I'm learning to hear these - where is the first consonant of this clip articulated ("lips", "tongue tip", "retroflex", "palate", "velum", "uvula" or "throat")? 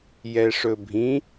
palate